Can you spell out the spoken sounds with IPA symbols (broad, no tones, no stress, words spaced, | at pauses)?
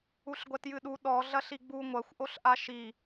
uɬɡʷɛtjɨɗu ɗɔ ɮɐɬiɡ͡bu ŋʷɐxʷ ʔoɬʔaʃi